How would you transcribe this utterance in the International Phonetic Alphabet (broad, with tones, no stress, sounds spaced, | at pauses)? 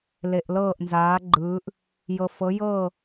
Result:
l e˩ ʔ l ɤː˧˩ ʔ n z aː˩˧ ɡ͡ǃ ɯː˩˧ ʔ | j ɤ˩ f ɤ˩˧ j ɤː˧˩